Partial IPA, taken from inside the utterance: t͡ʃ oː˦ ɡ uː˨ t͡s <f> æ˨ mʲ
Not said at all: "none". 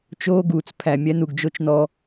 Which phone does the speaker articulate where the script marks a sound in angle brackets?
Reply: pʰ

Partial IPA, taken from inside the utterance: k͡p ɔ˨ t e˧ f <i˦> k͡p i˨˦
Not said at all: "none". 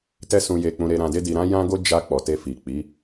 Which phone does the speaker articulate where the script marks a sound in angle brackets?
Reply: i˨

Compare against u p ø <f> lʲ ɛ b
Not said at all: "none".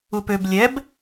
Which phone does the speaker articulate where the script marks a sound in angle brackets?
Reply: b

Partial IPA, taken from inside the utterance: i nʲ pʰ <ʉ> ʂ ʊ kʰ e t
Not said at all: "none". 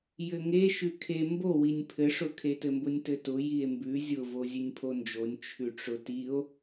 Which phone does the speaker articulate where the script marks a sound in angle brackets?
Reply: ɘ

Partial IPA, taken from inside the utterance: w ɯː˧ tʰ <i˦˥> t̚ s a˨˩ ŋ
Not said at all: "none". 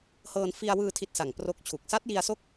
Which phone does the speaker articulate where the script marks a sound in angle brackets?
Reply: i˦˥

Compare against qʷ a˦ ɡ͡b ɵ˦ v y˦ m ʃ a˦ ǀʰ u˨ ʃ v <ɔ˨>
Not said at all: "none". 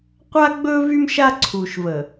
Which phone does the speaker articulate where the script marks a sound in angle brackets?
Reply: ə˨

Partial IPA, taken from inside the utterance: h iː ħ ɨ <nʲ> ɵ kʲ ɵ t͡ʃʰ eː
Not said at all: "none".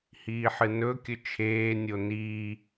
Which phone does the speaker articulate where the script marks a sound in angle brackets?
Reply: n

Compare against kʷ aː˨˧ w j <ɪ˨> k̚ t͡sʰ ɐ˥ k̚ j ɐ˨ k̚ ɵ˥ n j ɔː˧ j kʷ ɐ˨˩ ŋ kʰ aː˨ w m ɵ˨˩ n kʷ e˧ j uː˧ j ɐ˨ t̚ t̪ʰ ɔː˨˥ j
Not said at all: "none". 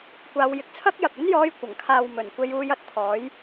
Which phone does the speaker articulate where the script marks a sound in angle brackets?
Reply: ɪ˨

